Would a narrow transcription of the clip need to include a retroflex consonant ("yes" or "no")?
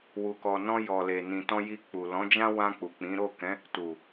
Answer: no